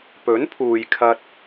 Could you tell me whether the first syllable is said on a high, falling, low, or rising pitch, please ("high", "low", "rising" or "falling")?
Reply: rising